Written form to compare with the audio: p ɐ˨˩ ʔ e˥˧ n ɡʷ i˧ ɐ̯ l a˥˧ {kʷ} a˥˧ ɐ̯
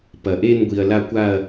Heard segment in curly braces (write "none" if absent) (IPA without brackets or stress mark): kʷ